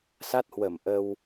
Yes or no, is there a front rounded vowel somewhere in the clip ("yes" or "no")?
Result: no